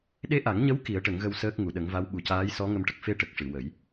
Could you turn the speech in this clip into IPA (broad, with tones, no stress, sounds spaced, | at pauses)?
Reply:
ɗ e˧ ʔ a˨˩˦ ŋ ɲ ə˧˥ w k i˨˩˦ ə̯ ʈ ə˨˩˦ ŋ ɣ ə˧ w s əː˦˥ k̚ ŋ u˨˩˨ ɗ ə˨˩˦ ŋ v a˧˥ w ɓ u˨˩ c aː˧˥ j s ɔ˧˥ ŋ ə˧ m ʈ ə˨˩ k̚ f e˧ ʈ ə˨˩ k̚ ʂ ɨ˨˩˨ w ə˨˩˦ j